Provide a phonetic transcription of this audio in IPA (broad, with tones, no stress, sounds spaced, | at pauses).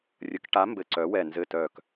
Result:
rʲ ə˨˥ k ʈ a˨˥ m b ɘ˧˩ ǀ œ˨˥ w ɛ˧˩ n z ɘ˧˩ t œ˧˩ k